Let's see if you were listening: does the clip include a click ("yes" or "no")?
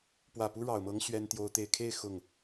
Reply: no